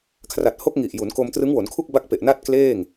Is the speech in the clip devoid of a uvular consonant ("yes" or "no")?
yes